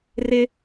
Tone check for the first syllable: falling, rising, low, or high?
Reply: high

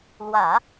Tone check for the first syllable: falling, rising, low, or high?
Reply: low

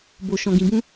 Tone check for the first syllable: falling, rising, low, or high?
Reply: low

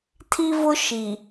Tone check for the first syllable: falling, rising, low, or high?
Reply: high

